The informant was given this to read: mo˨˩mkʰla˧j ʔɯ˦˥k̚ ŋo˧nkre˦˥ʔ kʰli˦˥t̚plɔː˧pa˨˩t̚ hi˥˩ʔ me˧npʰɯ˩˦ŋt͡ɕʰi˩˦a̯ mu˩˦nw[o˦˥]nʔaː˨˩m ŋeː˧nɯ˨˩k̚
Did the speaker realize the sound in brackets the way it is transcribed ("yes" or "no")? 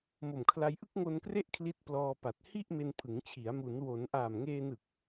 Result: no